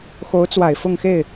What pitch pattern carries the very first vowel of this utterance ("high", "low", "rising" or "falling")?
rising